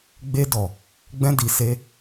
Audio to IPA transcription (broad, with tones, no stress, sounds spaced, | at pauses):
ɡ͡b e˧ d ɔ˨ | ɡ͡b ɛ̃˧ d i˨ s e˧